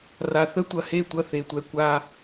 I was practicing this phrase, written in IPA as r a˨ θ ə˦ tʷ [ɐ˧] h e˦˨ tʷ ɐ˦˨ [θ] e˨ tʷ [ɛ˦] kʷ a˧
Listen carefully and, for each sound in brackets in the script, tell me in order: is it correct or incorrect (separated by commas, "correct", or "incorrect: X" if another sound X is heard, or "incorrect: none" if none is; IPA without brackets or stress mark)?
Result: incorrect: ɐ˨, correct, incorrect: ɛ˨